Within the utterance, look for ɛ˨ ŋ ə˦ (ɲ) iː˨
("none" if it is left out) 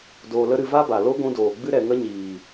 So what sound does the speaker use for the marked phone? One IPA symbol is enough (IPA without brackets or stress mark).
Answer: ɲ